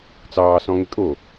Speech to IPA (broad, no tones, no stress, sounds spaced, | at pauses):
t͡s ɑː s ɔ̃ ŋ ɪ kʼ o